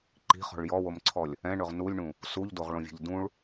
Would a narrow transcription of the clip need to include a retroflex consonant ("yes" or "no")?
yes